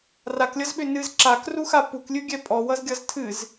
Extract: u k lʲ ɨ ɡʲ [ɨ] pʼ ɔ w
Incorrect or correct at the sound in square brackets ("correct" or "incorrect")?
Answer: incorrect